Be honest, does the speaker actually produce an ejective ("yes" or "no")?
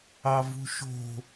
no